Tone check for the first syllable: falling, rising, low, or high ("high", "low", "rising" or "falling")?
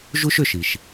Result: high